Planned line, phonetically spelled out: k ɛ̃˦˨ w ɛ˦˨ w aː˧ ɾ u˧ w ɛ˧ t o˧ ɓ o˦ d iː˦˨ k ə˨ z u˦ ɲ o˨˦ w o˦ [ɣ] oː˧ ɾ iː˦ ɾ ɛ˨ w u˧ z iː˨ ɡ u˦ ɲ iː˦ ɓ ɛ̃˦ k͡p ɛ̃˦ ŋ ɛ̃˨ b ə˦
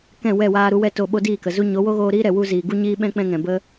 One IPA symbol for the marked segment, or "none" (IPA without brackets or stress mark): ɣ